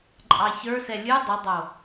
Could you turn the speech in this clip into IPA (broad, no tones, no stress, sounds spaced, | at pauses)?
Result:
ǃʼ ɑ ç ə˞ s ɛ lʲ ɨ dˤ ə dˤ o